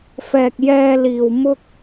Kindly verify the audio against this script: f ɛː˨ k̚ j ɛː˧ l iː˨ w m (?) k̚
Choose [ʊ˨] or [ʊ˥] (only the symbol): ʊ˥